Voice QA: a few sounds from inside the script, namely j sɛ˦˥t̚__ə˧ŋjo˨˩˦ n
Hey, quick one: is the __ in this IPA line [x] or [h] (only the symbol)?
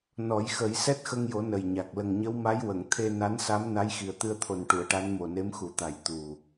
x